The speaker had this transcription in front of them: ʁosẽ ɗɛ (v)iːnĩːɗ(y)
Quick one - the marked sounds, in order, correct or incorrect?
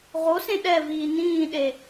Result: correct, incorrect: e

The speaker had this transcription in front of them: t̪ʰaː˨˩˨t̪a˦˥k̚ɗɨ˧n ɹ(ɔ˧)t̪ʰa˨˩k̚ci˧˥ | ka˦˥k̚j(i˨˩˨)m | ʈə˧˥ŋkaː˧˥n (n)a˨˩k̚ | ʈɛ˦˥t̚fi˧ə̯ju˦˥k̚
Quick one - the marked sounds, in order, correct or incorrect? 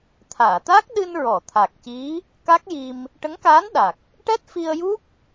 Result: incorrect: ɔ˨˩˨, incorrect: i˧, incorrect: ɗ

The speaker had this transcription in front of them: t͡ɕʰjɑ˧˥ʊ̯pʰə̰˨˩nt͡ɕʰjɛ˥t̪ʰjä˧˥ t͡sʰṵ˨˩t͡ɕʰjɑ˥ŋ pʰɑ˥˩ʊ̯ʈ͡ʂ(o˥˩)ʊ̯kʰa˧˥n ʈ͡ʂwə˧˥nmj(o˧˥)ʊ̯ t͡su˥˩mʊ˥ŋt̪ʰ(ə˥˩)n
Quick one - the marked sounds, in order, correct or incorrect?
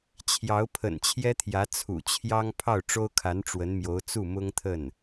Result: incorrect: o˥, correct, correct

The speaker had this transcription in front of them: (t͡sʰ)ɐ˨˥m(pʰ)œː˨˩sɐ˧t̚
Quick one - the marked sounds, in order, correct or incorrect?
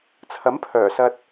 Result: correct, correct

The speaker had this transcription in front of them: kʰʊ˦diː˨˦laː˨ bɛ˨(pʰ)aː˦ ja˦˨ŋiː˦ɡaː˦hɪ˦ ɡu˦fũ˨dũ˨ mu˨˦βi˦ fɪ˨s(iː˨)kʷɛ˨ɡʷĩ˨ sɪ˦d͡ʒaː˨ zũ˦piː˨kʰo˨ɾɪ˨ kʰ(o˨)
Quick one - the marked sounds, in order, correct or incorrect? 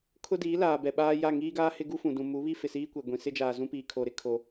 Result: incorrect: ɓ, incorrect: iː˦, correct

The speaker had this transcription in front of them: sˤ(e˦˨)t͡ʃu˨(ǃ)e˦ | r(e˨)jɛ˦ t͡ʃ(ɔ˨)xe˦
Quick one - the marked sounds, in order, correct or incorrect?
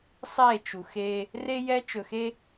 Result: correct, incorrect: x, incorrect: e˦, incorrect: ɵ˨

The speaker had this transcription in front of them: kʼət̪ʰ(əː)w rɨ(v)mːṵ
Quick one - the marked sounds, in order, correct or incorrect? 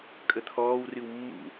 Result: incorrect: ɔː, incorrect: w

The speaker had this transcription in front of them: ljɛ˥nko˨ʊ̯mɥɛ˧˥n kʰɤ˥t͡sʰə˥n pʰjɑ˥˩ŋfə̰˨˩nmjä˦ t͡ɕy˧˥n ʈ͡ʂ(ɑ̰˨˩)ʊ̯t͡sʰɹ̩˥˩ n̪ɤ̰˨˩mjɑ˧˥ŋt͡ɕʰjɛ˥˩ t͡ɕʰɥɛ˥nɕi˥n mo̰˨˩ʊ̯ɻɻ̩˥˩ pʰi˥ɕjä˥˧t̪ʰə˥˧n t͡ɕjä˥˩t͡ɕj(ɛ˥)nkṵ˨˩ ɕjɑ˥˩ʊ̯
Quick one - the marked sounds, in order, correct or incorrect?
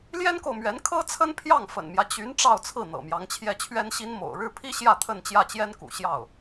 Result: incorrect: ɑ˥˧, correct

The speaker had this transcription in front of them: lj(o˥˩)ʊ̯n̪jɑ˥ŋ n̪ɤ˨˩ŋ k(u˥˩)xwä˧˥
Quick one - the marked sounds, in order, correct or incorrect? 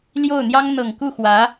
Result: correct, correct

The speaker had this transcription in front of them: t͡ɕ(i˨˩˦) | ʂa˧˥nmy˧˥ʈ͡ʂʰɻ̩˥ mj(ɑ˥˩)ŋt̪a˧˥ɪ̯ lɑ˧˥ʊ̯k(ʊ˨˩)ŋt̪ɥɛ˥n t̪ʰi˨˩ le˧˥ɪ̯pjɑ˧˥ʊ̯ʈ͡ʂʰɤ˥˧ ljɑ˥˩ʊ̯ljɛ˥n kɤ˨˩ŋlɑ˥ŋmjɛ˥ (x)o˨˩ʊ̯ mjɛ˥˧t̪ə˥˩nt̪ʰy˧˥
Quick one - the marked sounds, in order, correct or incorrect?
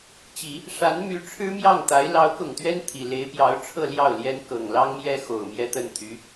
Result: correct, correct, correct, correct

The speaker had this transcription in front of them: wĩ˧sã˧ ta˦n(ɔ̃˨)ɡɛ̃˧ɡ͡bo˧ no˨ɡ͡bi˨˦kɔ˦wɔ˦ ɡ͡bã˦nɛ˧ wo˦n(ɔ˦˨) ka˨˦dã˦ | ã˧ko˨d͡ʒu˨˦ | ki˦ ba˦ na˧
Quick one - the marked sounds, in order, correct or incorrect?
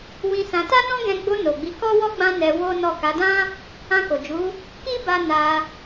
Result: incorrect: ɔ̃˦, correct

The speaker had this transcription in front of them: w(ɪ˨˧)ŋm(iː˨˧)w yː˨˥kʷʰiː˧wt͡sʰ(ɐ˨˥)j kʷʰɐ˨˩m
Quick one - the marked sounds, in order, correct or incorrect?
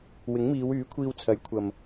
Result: incorrect: ɪ˨˥, correct, correct

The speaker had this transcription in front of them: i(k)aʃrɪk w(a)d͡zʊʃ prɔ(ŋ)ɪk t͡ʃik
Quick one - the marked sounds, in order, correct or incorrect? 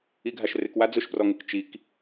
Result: incorrect: ɡʱ, correct, correct

